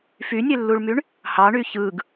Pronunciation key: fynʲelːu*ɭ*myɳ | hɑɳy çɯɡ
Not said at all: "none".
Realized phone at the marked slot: ɭ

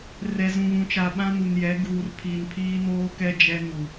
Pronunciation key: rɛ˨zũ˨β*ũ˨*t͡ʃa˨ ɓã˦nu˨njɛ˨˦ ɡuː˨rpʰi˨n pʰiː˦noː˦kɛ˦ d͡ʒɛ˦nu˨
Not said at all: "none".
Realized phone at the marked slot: ũ˨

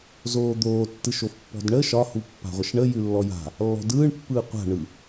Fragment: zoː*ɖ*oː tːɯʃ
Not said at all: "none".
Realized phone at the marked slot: d̪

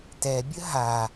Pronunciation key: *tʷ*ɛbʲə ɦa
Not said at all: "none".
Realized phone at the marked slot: t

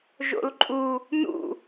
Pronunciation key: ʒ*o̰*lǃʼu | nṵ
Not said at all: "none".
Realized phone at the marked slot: o̰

